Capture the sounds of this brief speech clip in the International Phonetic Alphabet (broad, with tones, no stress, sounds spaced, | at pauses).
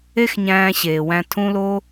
e˦ x ɲ æ̃ː˧ ɕ eː˨ w æ̃˧ tʰ ũ˦ l o˦